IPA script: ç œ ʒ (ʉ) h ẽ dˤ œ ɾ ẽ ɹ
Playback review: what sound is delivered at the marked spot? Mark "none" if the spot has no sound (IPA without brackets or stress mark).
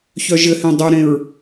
ɘ